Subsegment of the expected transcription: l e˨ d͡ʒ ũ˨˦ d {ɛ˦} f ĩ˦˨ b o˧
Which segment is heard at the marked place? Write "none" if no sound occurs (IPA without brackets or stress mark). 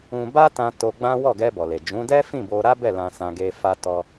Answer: ɛ˦